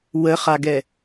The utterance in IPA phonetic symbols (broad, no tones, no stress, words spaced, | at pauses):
wəχaɡɛ